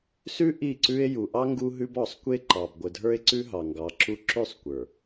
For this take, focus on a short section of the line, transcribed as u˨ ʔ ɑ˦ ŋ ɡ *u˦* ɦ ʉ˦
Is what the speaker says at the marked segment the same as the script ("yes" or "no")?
yes